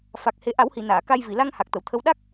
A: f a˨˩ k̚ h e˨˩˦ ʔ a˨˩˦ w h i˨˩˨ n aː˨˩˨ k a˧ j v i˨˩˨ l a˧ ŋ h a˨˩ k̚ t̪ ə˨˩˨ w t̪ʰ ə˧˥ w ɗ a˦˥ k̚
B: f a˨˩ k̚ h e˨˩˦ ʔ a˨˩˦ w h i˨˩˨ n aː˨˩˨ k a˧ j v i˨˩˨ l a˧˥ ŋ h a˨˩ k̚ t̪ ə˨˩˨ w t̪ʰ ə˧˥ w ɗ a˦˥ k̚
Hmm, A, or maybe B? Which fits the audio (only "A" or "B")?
A